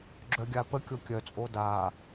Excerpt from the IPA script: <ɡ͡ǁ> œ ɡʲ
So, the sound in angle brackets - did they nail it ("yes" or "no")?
yes